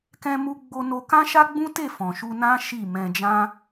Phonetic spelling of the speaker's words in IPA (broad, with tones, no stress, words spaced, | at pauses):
kɛ̃˧mu˧ ɡ͡bo˧no˧ kã˦ʃa˦ɡ͡bũ˦te˦˨ fɔ̃˨ʃu˧nã˦ ʃi˦˨ mɛ̃˧d͡ʒã˦